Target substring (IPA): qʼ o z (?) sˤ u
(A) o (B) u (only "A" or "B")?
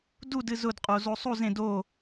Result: A